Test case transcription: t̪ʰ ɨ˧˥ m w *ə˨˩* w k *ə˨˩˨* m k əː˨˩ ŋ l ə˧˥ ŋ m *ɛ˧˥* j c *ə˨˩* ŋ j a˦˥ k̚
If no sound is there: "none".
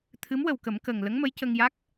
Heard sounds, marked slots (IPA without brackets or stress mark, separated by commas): ə˨˩, ə˨˩˦, ə˧˥, ə˧